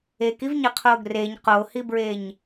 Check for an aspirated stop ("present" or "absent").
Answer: present